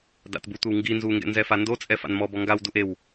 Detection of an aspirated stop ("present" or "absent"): absent